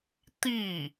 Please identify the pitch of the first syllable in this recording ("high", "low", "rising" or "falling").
falling